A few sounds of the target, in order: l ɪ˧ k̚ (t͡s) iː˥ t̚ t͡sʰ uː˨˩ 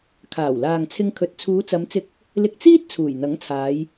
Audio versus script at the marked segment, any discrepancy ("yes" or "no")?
no